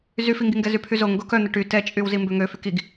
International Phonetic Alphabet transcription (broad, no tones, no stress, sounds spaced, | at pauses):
z y f i ŋ ɡ i ŋ ɡ ɛ z y pʰ y z o ŋ ɡ o k œ n̪ ə ʈ y t ɛ t͡ʃʼ y w z i m b ø ŋ ø f y k i ɡ